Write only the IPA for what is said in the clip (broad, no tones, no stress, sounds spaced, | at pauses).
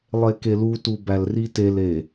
lˠ e k e l u t u b æ l r i t e l e